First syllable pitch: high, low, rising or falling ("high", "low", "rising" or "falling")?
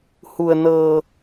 low